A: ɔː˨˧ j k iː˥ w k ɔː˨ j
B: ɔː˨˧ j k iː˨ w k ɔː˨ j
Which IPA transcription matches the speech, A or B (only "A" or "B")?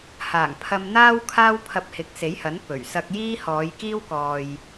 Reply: A